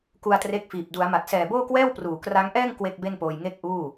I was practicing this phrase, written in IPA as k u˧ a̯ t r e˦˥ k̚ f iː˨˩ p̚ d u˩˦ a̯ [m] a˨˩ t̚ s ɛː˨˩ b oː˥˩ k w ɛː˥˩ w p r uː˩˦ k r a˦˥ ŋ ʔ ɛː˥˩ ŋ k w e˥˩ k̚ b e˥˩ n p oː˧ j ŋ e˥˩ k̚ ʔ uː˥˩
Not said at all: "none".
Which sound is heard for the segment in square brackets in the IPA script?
m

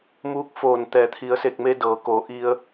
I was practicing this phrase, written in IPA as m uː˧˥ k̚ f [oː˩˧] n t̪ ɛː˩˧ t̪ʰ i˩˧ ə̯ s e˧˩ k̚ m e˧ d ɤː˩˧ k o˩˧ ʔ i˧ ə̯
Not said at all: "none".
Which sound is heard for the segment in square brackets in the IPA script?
oː˧˩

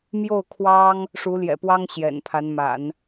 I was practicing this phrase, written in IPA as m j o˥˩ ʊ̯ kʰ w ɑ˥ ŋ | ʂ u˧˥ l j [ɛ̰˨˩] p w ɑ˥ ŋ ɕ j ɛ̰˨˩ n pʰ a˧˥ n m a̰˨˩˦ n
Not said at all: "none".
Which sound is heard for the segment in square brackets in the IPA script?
ɛ̰˨˩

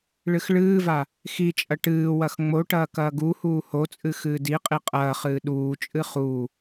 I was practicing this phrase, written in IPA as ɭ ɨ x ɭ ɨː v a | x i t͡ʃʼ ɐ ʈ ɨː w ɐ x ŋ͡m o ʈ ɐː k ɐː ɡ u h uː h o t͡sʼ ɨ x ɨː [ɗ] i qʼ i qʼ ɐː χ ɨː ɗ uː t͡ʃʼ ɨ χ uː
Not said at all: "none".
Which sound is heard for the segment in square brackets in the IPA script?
d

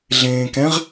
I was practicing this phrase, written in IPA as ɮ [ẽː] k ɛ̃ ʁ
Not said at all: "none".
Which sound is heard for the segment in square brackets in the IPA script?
ẽː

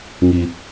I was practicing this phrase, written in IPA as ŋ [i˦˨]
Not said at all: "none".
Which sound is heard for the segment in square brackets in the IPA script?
i˨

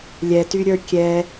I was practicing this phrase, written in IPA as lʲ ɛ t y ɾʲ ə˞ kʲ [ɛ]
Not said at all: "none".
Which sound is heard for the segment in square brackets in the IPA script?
ɛ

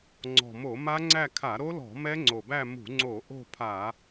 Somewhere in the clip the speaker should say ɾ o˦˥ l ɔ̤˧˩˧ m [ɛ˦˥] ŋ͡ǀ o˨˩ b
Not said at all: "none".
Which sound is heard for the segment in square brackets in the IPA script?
ɛ˦˥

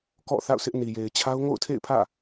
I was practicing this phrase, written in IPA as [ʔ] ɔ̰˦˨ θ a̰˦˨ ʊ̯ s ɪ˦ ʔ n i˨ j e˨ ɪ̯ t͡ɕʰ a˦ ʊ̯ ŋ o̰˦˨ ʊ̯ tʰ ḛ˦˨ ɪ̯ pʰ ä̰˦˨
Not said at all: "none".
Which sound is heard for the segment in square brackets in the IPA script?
k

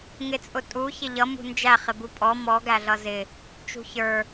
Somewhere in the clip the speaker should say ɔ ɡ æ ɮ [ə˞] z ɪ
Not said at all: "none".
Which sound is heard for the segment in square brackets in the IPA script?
ʌ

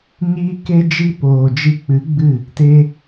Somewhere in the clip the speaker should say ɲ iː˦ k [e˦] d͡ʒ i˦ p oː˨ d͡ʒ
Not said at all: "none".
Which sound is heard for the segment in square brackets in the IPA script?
e˦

